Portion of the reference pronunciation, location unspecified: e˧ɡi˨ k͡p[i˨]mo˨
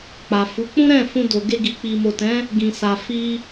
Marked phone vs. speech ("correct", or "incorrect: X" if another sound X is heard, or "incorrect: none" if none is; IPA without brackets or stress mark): correct